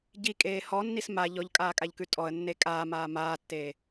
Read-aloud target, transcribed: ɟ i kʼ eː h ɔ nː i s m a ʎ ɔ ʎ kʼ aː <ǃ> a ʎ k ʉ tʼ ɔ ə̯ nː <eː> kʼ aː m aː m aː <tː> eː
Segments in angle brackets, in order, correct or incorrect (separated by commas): incorrect, incorrect, correct